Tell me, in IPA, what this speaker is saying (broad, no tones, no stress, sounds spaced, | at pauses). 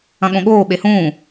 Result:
ɐ̃ ɠ õ ɠ oː ɓ e h ũː